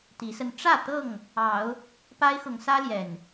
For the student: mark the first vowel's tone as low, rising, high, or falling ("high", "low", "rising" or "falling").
rising